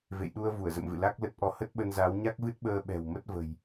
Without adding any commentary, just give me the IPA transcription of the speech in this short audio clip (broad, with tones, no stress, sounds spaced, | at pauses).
v ḛ˧˨ j ɗ u˧ ə̯ v u˧˩ ə̯ z ə̰˧˨ m v ɨ̰˧˨ l a˦˥ k̚ l ə˦˥ t̚ ʔ ɔ˧ h ə˦˥ t̚ ɓ ə˧ n z a˨˦ w ɲ a˦˥ k̚ v ɨ˦˥ t̚ ɓ əː˧ ɓ ɛ̤˨˩ w m ə˦˥ t̚ v ə̤˨˩ j